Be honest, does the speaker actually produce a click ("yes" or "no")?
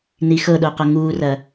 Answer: no